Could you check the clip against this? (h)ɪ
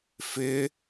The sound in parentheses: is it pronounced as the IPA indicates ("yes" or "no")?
no